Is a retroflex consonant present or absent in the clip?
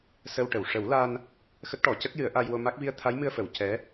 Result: present